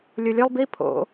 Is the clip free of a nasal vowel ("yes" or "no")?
yes